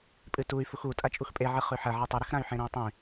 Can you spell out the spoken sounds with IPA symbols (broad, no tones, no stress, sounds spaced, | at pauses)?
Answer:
pʼ ɨ t u y̯ f u x u tʼ a t͡ʃʼ u x pʼ e ʕ ɨ χ ʉ ħ ɐ ʕ e tˤ ɨ ɾ ɐ x ɾ ã y̯ ħ ẽ ɾ ĩ u̯ tˤ ĩ